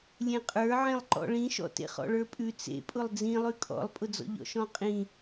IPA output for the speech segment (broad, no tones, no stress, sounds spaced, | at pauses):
lʲ ẽ qʼ ə˞ ʕ ẽ lˠ ǃ ɔ̰ ɭ ĩ ʃ ɔ̰ t ḛ χ ɔ̰ ɭ ə˞ pʼ ʉ t͡s ḛ pʼ ʊ lˠ d͡z ĩ lˠ ʉ kʼ ɔ̰ lˠ pʼ ʊ d͡z ɔ̰ ʎ ɔ̰ ʃ ɔ̃ qʼ ĩ